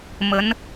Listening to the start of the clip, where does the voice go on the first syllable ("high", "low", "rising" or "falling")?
rising